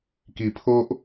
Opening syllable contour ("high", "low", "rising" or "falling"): low